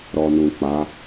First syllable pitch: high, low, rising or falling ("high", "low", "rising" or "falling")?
low